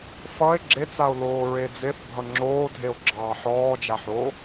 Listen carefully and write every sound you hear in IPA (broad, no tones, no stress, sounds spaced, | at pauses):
f ʌ e̯ ɡ͡ǁ e t͡s a o̯ l oː ɹ e d͡z e θ bʱ ʌ ŋ͡ǁ oː dʱ e o̯ ɡ͡ǁ ɑː ħ ɔː d͡ʒ a ħ o